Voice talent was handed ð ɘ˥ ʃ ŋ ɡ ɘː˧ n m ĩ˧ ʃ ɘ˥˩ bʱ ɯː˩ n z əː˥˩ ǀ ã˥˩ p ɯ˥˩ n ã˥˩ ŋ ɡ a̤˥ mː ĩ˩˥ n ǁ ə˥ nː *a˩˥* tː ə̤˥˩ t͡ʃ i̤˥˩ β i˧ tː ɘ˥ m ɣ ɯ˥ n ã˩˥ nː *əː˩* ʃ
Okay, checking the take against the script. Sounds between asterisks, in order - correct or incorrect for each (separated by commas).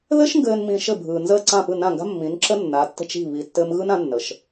correct, incorrect